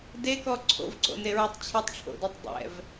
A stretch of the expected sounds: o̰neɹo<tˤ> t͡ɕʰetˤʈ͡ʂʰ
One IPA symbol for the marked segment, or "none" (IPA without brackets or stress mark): tˤ